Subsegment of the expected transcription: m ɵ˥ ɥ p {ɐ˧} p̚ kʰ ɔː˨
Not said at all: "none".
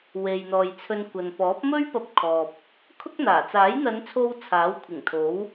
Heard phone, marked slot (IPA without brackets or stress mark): ɐ˧